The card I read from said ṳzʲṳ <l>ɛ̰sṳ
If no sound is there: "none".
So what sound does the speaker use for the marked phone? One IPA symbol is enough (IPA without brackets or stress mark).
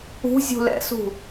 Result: l